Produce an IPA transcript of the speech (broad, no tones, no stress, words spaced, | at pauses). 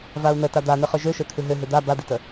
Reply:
vau̯nə tad̪anɨ χøʒøʃøt̪ʰɨ ɦøɦʏ d̪a bad̪itə